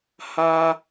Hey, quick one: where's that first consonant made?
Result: throat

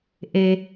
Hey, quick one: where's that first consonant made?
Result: throat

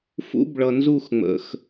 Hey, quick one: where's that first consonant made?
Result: lips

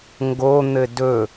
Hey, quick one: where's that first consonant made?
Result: velum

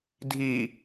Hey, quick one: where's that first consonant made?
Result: tongue tip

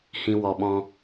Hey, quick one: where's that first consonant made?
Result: throat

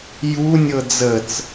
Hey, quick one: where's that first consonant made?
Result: palate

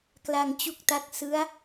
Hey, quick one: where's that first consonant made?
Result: velum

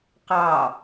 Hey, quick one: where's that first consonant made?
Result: uvula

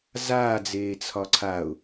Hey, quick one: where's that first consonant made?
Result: tongue tip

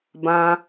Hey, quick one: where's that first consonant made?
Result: lips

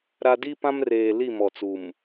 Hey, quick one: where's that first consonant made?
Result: tongue tip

